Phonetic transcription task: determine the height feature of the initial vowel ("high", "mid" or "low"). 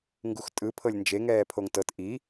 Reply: high